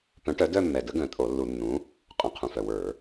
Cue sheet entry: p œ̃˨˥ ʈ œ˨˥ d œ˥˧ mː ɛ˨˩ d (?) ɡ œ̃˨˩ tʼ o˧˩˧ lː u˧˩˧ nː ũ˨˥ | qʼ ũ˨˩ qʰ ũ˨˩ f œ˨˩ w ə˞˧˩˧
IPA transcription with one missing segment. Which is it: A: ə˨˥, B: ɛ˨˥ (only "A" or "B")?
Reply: A